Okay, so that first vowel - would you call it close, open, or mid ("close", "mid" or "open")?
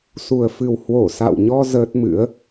close